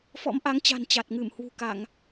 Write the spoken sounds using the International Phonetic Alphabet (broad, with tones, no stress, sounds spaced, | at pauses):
f ɔ̰˧˥ m ʔ a˨˦ ŋ t͡ɕ a̤˨˩ n t͡ɕ a˨˩ t̚ ŋ ɨ˧˩ m h w ṳ˨˩ k a˧˩˨ ŋ